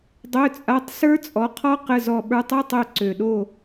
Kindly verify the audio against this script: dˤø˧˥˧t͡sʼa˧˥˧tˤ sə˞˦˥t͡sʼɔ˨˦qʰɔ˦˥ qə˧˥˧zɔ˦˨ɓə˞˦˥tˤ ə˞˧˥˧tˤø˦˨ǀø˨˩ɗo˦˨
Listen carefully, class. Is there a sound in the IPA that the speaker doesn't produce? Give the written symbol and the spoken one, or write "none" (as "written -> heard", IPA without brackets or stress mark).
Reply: none